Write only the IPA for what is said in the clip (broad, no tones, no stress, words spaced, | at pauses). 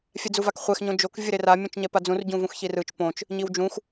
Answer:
fʲɛd͡zuvakχʷɛx ɲõd͡ʒok vʲɯɾera mʲũt͡ʃɲɛpad͡zũr ɟũvũxçirɯt͡ʃ põt͡ʃ | ɲiwd͡ʒũx